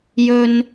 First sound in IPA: j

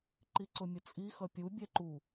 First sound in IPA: ǃ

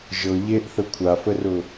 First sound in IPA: ʒ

